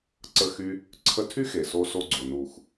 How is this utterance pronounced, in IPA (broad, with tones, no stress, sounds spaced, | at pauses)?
ǀ ə˦ x y˦ | ǀʰ ə˧ tʰ y˦ x e˨ s o˧ s o˧ ɡ͡ǀ o˨ n u˨ x